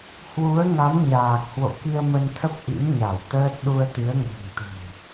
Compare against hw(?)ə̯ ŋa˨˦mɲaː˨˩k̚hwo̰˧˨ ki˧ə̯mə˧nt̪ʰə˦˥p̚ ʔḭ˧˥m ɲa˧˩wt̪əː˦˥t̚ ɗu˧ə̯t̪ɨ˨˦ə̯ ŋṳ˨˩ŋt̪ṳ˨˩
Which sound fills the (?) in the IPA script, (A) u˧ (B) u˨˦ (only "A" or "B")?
B